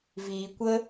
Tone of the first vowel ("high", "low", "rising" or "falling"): low